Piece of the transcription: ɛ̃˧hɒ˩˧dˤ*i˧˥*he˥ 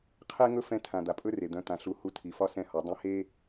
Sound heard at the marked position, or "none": ĩ˧˥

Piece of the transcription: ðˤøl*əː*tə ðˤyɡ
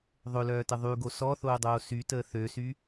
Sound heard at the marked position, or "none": œː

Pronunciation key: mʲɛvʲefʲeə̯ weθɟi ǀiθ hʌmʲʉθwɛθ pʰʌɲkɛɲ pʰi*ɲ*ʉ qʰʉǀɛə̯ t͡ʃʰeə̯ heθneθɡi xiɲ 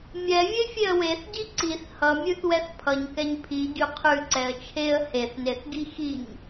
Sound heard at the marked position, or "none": ɟ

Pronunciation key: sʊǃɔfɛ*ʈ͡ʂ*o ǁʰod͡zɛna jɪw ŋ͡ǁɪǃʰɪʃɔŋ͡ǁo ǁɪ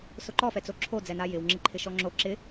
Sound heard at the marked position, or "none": t͡s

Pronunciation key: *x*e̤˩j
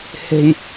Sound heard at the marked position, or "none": h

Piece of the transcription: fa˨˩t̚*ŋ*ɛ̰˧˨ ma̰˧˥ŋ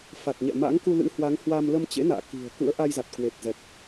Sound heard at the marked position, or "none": ɲ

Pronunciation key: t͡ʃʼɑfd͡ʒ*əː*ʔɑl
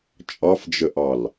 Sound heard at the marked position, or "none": ə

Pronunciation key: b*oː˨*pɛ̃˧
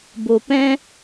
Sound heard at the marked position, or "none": o˨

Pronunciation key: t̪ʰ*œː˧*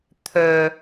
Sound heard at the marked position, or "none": œː˧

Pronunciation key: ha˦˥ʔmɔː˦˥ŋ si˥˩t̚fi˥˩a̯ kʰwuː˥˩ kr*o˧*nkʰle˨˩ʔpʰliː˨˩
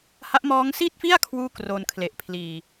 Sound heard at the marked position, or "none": o˧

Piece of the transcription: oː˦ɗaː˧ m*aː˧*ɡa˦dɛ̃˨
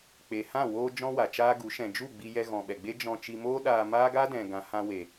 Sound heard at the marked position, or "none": aː˦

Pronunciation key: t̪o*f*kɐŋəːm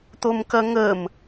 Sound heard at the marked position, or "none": m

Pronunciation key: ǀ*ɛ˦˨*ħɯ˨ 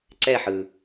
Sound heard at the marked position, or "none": ɛ˦˨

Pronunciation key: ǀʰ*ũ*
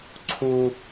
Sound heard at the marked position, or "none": u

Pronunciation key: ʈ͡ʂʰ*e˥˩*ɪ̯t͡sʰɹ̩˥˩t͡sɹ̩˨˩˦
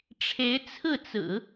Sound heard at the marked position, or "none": e˧˥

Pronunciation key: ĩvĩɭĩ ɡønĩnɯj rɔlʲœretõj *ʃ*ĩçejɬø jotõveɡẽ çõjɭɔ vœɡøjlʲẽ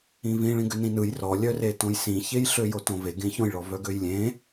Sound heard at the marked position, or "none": s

